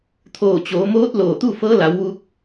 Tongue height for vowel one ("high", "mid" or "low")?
mid